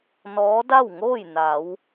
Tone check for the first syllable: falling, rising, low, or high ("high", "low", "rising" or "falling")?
rising